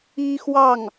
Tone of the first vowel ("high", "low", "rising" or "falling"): high